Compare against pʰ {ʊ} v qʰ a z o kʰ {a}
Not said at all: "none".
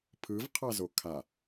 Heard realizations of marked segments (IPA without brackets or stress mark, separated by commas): ɯ, a